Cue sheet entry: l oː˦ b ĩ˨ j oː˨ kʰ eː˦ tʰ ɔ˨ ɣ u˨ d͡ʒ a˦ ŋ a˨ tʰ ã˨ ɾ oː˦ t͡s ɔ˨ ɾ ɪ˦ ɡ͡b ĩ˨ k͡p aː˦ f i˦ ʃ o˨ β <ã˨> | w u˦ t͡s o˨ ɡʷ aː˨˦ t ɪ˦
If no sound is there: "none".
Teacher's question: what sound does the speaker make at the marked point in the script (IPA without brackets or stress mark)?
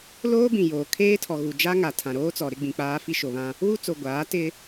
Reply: ã˦